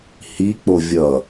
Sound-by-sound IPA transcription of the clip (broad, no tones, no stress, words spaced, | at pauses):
hik͡po vʲʌ